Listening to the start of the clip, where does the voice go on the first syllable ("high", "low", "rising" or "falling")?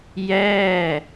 falling